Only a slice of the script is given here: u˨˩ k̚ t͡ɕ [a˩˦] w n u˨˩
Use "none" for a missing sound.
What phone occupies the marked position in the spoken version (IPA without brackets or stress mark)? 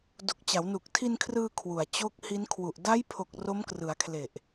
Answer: a˩˦